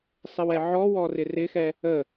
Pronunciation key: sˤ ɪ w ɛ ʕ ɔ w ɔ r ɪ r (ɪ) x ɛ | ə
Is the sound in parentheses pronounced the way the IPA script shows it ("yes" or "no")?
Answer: yes